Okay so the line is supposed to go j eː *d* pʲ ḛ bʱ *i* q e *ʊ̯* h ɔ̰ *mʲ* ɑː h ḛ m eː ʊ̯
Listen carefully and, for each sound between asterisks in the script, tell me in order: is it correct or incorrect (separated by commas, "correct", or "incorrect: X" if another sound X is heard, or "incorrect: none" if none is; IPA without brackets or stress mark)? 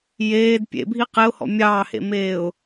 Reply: correct, correct, correct, correct